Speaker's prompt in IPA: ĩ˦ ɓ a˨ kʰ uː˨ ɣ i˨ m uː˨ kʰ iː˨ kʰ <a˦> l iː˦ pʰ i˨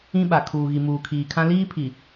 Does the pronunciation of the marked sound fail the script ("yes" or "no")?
yes